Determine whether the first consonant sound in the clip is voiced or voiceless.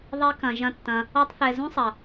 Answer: voiced